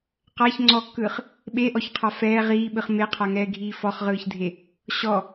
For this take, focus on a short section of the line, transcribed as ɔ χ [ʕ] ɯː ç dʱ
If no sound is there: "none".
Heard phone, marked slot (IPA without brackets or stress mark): ʁ